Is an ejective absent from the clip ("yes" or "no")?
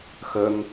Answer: yes